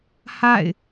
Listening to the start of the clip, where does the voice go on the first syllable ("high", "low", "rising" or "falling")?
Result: falling